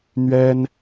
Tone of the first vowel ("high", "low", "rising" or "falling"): high